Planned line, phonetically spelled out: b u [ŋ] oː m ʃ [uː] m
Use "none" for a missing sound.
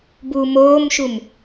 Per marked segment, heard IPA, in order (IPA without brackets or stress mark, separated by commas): m, u